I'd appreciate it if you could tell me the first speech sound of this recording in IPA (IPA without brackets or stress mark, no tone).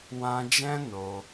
w